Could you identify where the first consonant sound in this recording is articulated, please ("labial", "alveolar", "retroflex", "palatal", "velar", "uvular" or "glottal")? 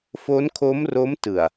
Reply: labial